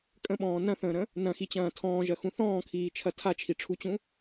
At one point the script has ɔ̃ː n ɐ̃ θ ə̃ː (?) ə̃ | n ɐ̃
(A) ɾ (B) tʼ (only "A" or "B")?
A